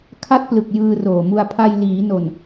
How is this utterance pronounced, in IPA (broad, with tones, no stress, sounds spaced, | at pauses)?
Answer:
kʰ a˦˥ t̚ p l ɯ˨˩ k̚ j ɯː˧ r oː˨˩ m u˧ a̯ pʰ a˧ j l iː˩˦ n o˨˩ n